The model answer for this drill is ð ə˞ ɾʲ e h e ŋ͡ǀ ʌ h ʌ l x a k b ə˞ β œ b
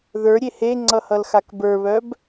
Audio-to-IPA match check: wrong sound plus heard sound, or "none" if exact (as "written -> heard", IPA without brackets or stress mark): none